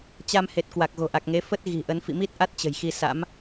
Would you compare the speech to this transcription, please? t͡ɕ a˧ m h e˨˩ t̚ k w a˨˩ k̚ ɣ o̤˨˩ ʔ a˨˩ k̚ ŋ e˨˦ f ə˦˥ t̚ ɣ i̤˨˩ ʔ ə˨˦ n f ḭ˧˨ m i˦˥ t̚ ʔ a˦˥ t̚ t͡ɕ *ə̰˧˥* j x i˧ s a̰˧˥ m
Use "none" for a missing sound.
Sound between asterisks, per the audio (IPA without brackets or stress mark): ə̤˨˩